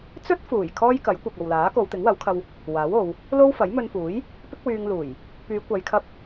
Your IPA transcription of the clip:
t͡s ɵ˥ t̚ f uː˨˩ j kʰ ɔː˥ j k ɐ˨˥ j kʷ ɪ˨ k̚ ɐ˨ w l aː˨˥ k o˨˧ w t̪ ɪ˨˥ ŋ w ɐ˨˥ w kʰ ɐ˧ w | w aː˨˥ w o˨˧ w | l o˥ w f ɐ˨˥ j m ɵ˧ n f uː˨˥ j | p ɪ˥ k̚ w yː˧ ŋ l uː˨˩ j | p yː˨˧ kʷ ɐ˨˧ j kʰ ɐ˧ p̚

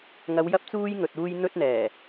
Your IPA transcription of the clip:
ŋ ɐ˨˧ w j ɐ˧ p̚ t͡s uː˧ j ŋ ɵ˨ t̚ uː˧ j n̪ ɵ˧ t̚ n̪ ɛː˨˩

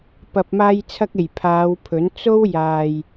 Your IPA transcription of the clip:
p ɐ˨ p̚ m aː˧ j t͡sʰ ɐ˧ k̚ e˨˩ j pʰ aː˨˧ w pʰ ɵ˨˥ n t͡s o˥ w j aː˨ j

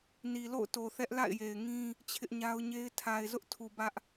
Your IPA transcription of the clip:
n i˨ l o̰˦˨ ʊ̯ t o˨ θ ɛ˦ ʔ l a̰˦˨ ɪ̯ j e˨ ɪ̯ ŋ ĩ˦ | t͡ɕʰ ɪ˦ ʔ ɲ a˦ ʊ̯ ɲ e˦ ɪ̯ tʰ a˨ ɪ̯ z ʊ˦ ʔ tʰ u˨ b ä˦ ʔ

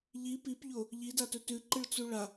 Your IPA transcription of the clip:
ʎ i p i p ʎ o | ʎ i d a t ɵ t ʉ ǃ ɨ ɭ t͡s u ɭ a

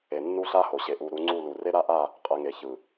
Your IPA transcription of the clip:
e˨ nː u˦ ɬ a˦ h o˨ ɕ e˨ ʔ u˨ ɾ u˨˦ ŋ͡ǀ u˦˨ l u˨ r e˦ ɾ a˦ ʔ a˦˨ | qʼ ɛ˨ ŋ e˨ ç ɯ˨

